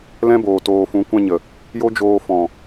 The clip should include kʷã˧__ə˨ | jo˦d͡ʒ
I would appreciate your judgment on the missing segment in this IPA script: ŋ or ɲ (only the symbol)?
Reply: ɲ